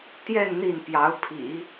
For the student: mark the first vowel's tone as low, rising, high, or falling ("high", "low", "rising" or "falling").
falling